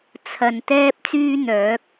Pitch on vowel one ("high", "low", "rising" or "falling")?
low